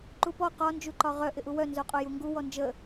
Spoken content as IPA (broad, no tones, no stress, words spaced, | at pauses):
ǃupɔ qɒ nd͡ʒuǃɒʁœ ʔɪʔuwœ nzoqʼojuŋɡu wɔnd͡ʒə